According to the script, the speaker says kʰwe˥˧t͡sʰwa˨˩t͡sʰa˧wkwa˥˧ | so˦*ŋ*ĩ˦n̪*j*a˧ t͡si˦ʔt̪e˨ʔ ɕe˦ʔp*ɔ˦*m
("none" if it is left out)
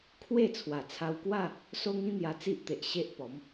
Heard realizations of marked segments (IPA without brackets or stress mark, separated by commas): ŋ, j, ɔ˨˦